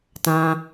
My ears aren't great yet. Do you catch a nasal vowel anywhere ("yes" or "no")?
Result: yes